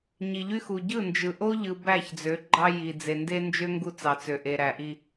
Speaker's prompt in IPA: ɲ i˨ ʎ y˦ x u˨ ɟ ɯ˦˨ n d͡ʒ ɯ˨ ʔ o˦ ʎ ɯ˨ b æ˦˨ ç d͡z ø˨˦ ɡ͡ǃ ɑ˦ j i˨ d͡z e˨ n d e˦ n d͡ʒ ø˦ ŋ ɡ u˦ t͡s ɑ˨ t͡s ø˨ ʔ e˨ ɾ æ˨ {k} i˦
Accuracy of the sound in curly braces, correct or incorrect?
incorrect